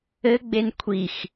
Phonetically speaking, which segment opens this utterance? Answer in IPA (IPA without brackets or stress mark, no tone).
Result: ɘ